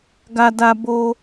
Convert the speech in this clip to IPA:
ɡ a˧ d a˧ b o˧

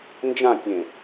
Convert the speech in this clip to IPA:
n d͡ʒ ã tʲ ẽ

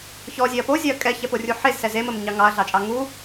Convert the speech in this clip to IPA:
ç ɔ zʲ e ɐ̯ p o zʲ ɛ ɐ̯ kʼ ɛ ç ɛ p o rʲ u ħ e z s ɛ z e m ə m ɲ ɑ ŋ ɑ ɐ̯ ɮ ɑ t͡ʃʼ ɑ ŋ u

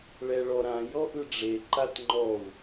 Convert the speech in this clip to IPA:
ɭ ɛ ɭ ɔ ɾ ã j ɔ ʔ ɯ ɖ͡ʐ e ǃ a t ŋ͡ǃ ɔ u̯

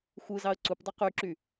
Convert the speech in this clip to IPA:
xʷ ɯ z ɑ ə̯ ǀ u p dˤ y q y ǁ y

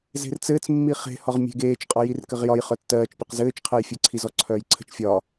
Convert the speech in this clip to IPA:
z e̤ r t͡s ɘː t͡s mː i χ e̤ h ɒ ʁ mʲ e̤ ɡ eː t͡ʃ qʼ ɒ j i r k ɘ ʁ j ɒ j χ œ tː ɜː t͡ʃ pʲ ɘ q z ɘː t͡ʃ qʰ ɜ j fʲ ɛ ǀʰ i z ɔ ǀʰ œː j ǀʰ ə̤ t͡ʃ fʲ ɒ

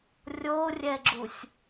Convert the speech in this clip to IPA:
rʲ o rʲ ɛ ɡ͡ǁ u sʲ

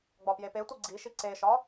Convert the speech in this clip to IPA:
ɡ͡b ɒ p j e p e tʷ i ɡ͡ǀ i ʃ i ǀ e ʃ ɒ

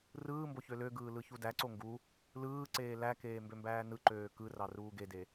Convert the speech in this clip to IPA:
r ɯː m b o ç ø l ø ɡ ɯː l ɯ ç u d æ ǀ o ŋ ɡ u | l ɯː ǀ eː l æ k eː m b ø m b æː n ɯ ǃ øː k ɯ r ɑ r uː ɡ e d e

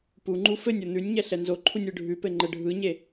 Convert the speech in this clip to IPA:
p u ŋ͡ǃ u f ɘ nʲ o n̪ ʉ nʲ ɲ ɛ ɬ ɛ n z o ǃʰ u nʲ ɯ ɖʱ ʉ p ɘ ŋ͡ǃ ɘ ɖʱ ɯ ɲ e

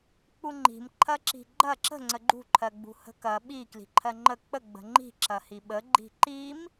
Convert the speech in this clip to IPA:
k͡p u ŋ͡ǃ i̤ m ǃʰ ɐ ǁ i̤ ɡ͡ǃ ɐ ǁ ə̤ ŋ͡ǀ ə ɡ͡ǃ ṳ ǃʰ ɜ ɡ͡b ṳ h ə̤ k ɐ ɓ i k l i̤ ǃʰ ɜ ŋ͡ǃ ə k͡p ə ɡ͡b ə̤ ŋ͡ǃ i̤ ǁ ɐ h i ɓ ə ɡ͡ǃ i̤ ǃ i m

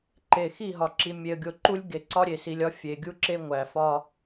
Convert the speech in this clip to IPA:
ǃ e˨ x i˦˨ ɦ ɒ˨ ǁ i˨ mʲ e˨ ə̯ ɡʲ o˨ ǃ u˦ lʲ ɡ e˨ ǀ ɒ˦ ɾʲ e˨ s i˨ lʲ ɒ˦ fʲ e˨ ɡʲ u˦ ǁ e˦ ŋʷ æ˨ f ɒ˦

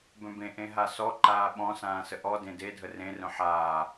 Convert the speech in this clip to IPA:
b œ̃ b ẽ ʔ ẽ ɦ a s ɔ ǃ aː ɓ ɔ̃ s ãː s ə ʔ ɔ d ẽ d e dʱ ə r ẽ r œ̃ ħ aː

